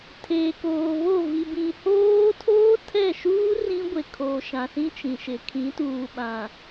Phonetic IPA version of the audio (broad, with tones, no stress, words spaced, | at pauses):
tʰeː˨koː˨βo˦˨ vi˨bĩ˨hoː˦ tʰoː˦tʰɛ˦˨ʃuː˦ rĩ˦ɡʷe˨ kʰoː˨ʃã˨sĩ˦ t͡ʃĩ˨ʃɪ˨ kʰĩ˨˦tuː˨ɓã˨